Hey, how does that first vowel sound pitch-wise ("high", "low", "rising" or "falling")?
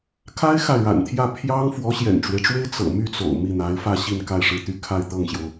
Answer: high